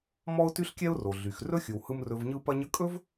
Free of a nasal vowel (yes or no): yes